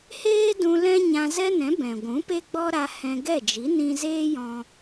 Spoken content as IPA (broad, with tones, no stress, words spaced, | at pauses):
heː˦ dũ˧lɛ̃˦ ɲã˧zɛ˦nɛ̃˨˦ bɛ̃˨ɡʷũ˨˦pe˦ ɡ͡bɔ˦ ɾa˧ hɛ̃˧ ɡɛ˦˨d͡ʒi˨˦ nĩ˧zeː˦jɔ̃˧